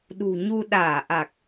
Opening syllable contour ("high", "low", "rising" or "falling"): low